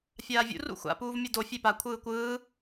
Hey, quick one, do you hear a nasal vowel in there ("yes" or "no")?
no